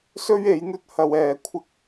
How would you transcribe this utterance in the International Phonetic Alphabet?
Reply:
s ɵ˥ ɥ e˨˥ j n̪ ɵ˥ t̚ h ɐ˧ w ɛː˨˧ kʷʰ ɪ˥ k̚

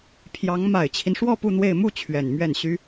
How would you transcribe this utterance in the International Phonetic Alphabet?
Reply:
pʰ j ɑ˧˥ ŋ m a˨˩ ɪ̯ t͡ɕʰ i˦ n ʂ w ɔ˥˧ p u˥˧ n̪ w e˥˧ ɪ̯ m u˥˩ t͡ɕʰ ɥ ɛ˨˩ n m ɥ ɛ˥˩ n ɕ y˥

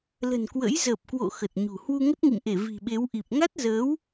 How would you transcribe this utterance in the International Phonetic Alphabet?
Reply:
l ə̤˨˩ n k w ə̰˧˥ j z əː˨˩ p̚ k w o̰˧˨ x ə˨˩ t̚ ɲ ṳ˨˩ h w u˧ ŋ ə˦˥ t̚ ŋ ḭ˧˨ m ʔ e˧˩ v i̤˨˩ ɓ e˨˦ w ʔ i˨˩ p̚ ŋ a˦˥ t̚ z əː˨˦ w

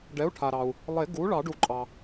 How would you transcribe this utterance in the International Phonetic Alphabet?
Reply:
ɖ ɛ˩˥ u̯ ʈʰ a˩ ɾ ɑ˩ u̯ | lˠ e˨˩˦ ɡ u˩˥ ɭ ɑ˨˩˦ ɖ u˨˩˦ ǃʼ ɑ˩

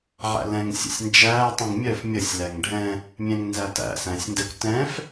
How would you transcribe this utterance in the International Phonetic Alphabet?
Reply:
ʕ æ̰ l ɛ̃ ŋ sʲ ə̰ sʲ n d͡ʒ æ tˤ ĩ ŋ mʲ œ f mʲ ə sʲ l æ ŋ ɖʱ ɛ̃ | mʲ ɛ̃ ŋ n z æ t æ̰ s æ̃ sʲ n d ɛ kʷ t ɛ̃ f

